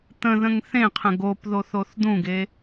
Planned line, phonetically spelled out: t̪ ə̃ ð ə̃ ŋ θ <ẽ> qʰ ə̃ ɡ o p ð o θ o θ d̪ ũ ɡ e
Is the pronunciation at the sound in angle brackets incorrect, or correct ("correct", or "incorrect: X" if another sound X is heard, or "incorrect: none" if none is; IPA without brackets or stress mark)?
correct